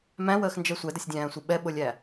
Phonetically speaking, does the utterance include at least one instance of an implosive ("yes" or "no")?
yes